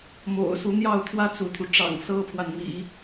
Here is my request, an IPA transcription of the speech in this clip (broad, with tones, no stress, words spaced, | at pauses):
mo̰˨˩ʊ̯ su˧˥n̪jɑ˥˩ʊ̯ t̪ʰwä˥t͡sṵ˨˩t̪ʰu˦ ʈ͡ʂɑ̰˨˩ŋsɤ˥pʰwa˨nmḭ˨˩˦